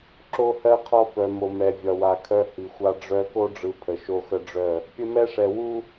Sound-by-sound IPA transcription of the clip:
ǁ o˦ h ɜ˦ qʰ ɒ˦ f œ˨ m o˨ m ɛ˨ vʲ ɒ˨ w a˨ kʰ œ˦ h i˨ xʷ a˦ ɖ͡ʐ œ˦ k o˦ ɖ͡ʐ ɯ˨ pʰ ə˨ ʃ o˦ x ə˦ ɖ͡ʐ œ˦˨ | pʲ ə˦ m ɛ˦ ʂ ɛ˨ w u˦

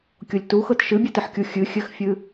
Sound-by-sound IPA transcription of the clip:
kʲ o lʲ t u x ɤ t ʃ ɨ bʲ ɨ t ɨ ħ kʲ u xʲ ɨ xʲ ɘ x fʲ ɨ

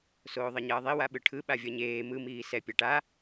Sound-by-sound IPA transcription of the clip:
s oː ðˤ ʌ ɲ ʌː ðˤ i w a ɓ ɯ ʈʰ ɯ ɓ a vʲ ʌ ɲ eː m ɯ m iː s ɛ pʲ a ʈ a

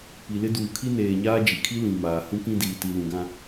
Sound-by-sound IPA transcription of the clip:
p i˨ l ɪ˦ d uː˨ kʰ i˦ n eː˨ ɲ aː˦ d͡ʒ i˨ kʰ i˦ l ĩ˨ m aː˨ h ũ˦ k ĩ˦ d iː˨ t i˨ l ũ˨ ɡ ã˦

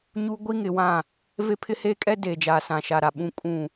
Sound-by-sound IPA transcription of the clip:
ɲ u˦ ɡʷ i˦ ŋ ɪ˨˦ w ã˦˨ | v e˦ pʰ ɪ˦ h eː˦ kʼ ɛ˦ d eː˨ d͡ʒ aː˨ s ã˨ ʃ a˨ ɾ a˨ ɓ ũ˨ kʼ ũ˨

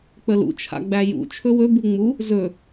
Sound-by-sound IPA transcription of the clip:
k͡p ə l ṵ t͡ʃʰ a̰ ɡ͡b æ j ṵ t͡ʃʰ ɵ w ɵ b u ŋ͡m u | z ɵ

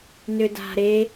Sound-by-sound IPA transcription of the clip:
n ʏ d a̤ ɾ e

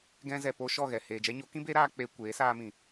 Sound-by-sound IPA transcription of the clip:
ɡ ɛ̃˧ z ɛ˨ p o˧ ʃ ɔ˦˨ ɣ ɛ˨ h e˨ d͡ʒ ɛ˧ ɲ o˨˦ k ĩ˦ b eː˦ ɾ aː˦ k͡p e˧ kʷ eː˨˦ s aː˧ m ĩ˨

